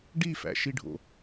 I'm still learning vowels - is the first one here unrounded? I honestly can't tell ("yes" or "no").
yes